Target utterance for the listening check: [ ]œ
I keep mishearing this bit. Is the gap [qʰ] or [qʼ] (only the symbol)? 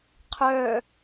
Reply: qʰ